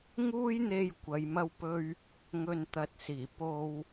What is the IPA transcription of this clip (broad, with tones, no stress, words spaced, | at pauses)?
ŋuː˥jn̪e˧j kʷɐ˨˧jmɐ˥wpɵ˥ɥ | ŋɵ˨nt̪ɐ˨t̚ siː˨˩ po˧w